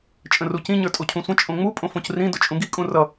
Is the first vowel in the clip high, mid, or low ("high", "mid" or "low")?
mid